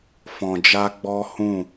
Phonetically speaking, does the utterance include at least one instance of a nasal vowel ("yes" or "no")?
yes